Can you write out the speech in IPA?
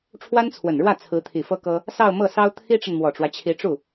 ʈ͡ʂʰ w a˥ n t͡sʰ w ə˨˩ n ɻ w ä˥˩ t͡sʰ ɹ̩˧˥ t̪ʰ i˨˩ f ɤ˥ k ɤ˥ | s ɑ˥˧ ʊ̯ m ɤ˥˩ s ɑ˥ ʊ̯ t̪ʰ i˥ ʈ͡ʂ ə˨ n m w ɔ˨˩ ʈ͡ʂ w ä˦ t͡ɕʰ i˧˥ ʈ͡ʂ u˥˩

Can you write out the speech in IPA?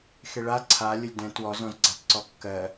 x e ɭ a ǀʰ a lʲ ə lʲ d ɛ̃ t w ɔ z ɔ̃ z ɡ͡ǀ a t ǀ ɔ kː ɜ

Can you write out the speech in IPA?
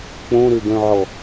k͡p õ ɾ ø ɡ œ̃ ʕ ɔ

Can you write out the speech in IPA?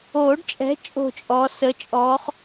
oː˨˩˦ ɖ t͡ʃʼ ɛ̤˨˦ t͡ʃʼ o̤˥˧ t͡ʃʼ ɔ˨˦ s ə˨˦ t͡ʃʼ ɔː˨˦ χ

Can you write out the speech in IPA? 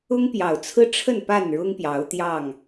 ʊ˦ ŋ p j ɑ˨˩ ʊ̯ t͡sʰ ɹ̩˦ ʈ͡ʂʰ ə˥˨ n p a˥˨ n ɻ ʊ˦ ŋ p j ɑ˨˦ ʊ̯ t̪ j ɑ˥˨ ŋ

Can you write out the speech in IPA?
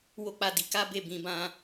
w o˦ k͡p a˦˨ d i˨˦ k a˦ b e˦˨ b ĩ˧ b ã˦

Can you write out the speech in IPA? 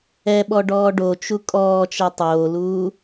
ɛ ɓ ɔ ɖ ɔː ɖ o t͡ʃ u kʼ ɔː t͡ʃ ɛ tˤ oː l uː

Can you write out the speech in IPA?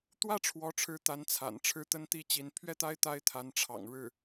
t̪ w ä˥ ʈ͡ʂʰ w ɔ˧˥ ʈ͡ʂʰ ɻ̩˧˥ t̪ a˧˥ n t͡sʰ a̰˨˩ n ʈ͡ʂʰ ɻ̩˥˩ t̪ ə˥ n t̪ i˥ t͡ɕ i˧˥ n pʰ ɥ ɛ˥˩ t̪ a˥ ɪ̯ t̪ a˥ ɪ̯ t̪ʰ a˧˥ n ʈ͡ʂʰ ɑ̰˨˩ ŋ ɻ ɻ̩˥˩

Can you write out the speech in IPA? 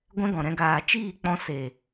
ɡʷ ɛ̃˦ ɡ ɔ̃˨ ɾ ɛ̃˧ ɡ aː˨ t͡ʃ iː˦˨ k͡p ɔ̃˧ s eː˨

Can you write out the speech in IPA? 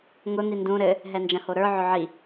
ŋ ʊ n̪ i n d ũ ɾ ɘ | ɦ ɛ n d͡ʒ ɐ̃ h o ɾ ə˞ ʕ ʊ ʕ i

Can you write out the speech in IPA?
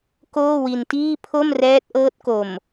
k oː˥˩ w i˧ n t iː˥˩ pʰ o˥˩ m r ɛː˦˥ t̚ ʔ ɤː˦˥ t̚ k o˨˩ m

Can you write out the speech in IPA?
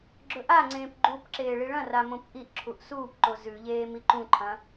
ɡ͡ǁ ɵ ʔ a ŋ͡ǀ ẽː p ɡ͡ǃ u p ǁ eː ɭ i ɭ ɐ̃ r a m õ p ʔ i ʔ ǁʰ u ʔ s uː p ǃ o z ʉ ʎ eː m i ǃ ũ ǃʰ ɐ̃

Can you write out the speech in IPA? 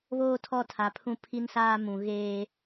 β oː˦ tʰ ɔ˦˨ tʰ a˨ pʰ ũ˦ pʰ i˦ n s aː˦ m ũ˨ ɣ eː˦

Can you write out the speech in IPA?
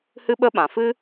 h ɨ˦ ɓ ə˦ ɓ ã˨ f ɨ˦

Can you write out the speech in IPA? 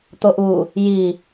t̪ o ʔ u | j i

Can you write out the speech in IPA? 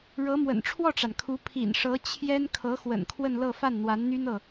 ɻ ɤ˧˥ m w ə̰˨˩ n ʈ͡ʂʰ w ɔ˥˩ ʈ͡ʂ a˩ n kʰ u˧˥ pʰ ḭ˨˩ n ʂ ɤ˧˥ t͡ɕʰ j ɛ˥ n kʰ ɤ˧˥ x w ə̰˨˩ n kʰ w ə˥˧ n l ɤ˥˧ f a˥˩ n n̪ w a˧˥ n n̪ y˥ n ɤ˨

